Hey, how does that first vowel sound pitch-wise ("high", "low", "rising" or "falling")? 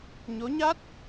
rising